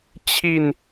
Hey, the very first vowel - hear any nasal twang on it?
no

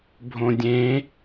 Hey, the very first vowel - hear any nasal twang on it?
yes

